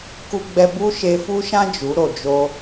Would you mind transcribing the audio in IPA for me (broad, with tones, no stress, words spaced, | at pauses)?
ku˧ɡ͡bɛ˧ bu˦ ʃe˧fu˦ʃã˦ d͡ʒu˨˦ɾo˨d͡ʒo˦